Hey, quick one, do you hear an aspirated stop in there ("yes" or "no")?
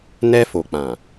no